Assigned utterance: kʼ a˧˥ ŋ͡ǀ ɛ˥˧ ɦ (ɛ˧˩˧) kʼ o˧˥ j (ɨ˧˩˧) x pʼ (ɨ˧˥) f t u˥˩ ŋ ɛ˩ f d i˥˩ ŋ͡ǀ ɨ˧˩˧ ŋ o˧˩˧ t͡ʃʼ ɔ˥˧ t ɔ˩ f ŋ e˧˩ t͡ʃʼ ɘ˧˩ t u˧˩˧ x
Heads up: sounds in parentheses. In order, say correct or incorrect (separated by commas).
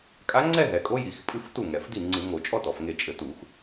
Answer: incorrect, incorrect, correct